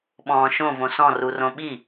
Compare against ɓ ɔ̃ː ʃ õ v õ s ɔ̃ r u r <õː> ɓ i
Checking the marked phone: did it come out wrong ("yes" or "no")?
yes